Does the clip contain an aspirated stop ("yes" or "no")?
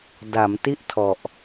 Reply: yes